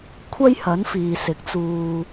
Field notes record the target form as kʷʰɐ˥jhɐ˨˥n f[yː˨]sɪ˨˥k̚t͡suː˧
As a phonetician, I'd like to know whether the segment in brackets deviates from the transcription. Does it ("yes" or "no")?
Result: yes